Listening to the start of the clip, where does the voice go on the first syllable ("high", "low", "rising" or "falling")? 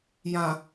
low